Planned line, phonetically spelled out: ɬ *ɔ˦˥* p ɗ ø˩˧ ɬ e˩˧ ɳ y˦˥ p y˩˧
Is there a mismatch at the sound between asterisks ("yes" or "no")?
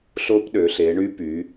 yes